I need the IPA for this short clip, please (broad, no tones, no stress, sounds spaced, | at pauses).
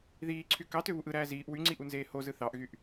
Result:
ð iː ǀʰ y k ɑ t ø β u ʔ ɯ ɾ æː z iː ʔ w y ŋ͡ǀ i ʔ u n z eː h o z ɯ θ ɑ ʔ ɣ y ʔ